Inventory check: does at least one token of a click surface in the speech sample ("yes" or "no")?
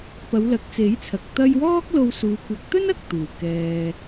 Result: no